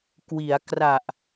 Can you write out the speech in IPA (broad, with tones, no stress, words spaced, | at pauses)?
kwi˩˦a̯kra˨˩ʔ